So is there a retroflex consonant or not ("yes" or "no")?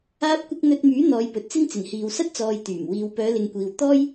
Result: no